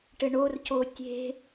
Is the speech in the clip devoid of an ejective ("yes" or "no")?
yes